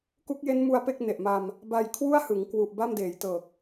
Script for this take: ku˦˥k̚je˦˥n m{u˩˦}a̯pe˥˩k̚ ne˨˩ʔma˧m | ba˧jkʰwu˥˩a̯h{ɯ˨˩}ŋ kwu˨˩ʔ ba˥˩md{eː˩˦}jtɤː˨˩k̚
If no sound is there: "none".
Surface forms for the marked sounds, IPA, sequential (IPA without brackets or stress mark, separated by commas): u˦˥, ɯ˩˦, eː˩˦